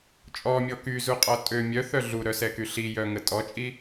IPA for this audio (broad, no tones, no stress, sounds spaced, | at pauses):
t͡ʃʼ ɔ mʲ ɔ k y z u qʼ ɔ tʼ ø mʲ œ θ œ ɮ u ɾ œ s ɛ k y ɬ i j œ ŋ ə tʼ ɔ t͡ʃʼ i